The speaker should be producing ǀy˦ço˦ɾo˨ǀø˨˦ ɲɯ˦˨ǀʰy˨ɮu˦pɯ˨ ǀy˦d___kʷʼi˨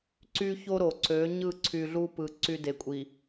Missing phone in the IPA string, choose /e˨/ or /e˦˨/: e˨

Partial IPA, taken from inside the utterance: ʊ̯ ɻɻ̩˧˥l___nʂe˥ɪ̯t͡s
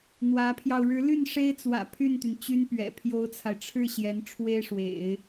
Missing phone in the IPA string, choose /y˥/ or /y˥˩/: y˥˩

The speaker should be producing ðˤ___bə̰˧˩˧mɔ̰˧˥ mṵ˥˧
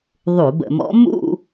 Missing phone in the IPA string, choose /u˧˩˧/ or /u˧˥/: u˧˩˧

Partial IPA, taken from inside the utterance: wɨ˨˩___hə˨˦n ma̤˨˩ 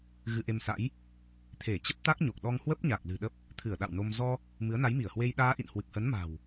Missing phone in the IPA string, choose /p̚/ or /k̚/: k̚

